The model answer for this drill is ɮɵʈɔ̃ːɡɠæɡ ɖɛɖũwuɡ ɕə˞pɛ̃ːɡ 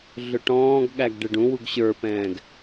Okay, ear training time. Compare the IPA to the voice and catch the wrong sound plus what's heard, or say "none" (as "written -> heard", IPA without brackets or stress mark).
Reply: none